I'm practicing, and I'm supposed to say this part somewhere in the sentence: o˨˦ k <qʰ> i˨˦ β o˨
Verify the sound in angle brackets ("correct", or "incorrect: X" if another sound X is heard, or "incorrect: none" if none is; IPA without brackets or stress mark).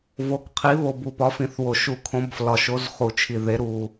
correct